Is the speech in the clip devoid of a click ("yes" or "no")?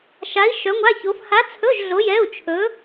yes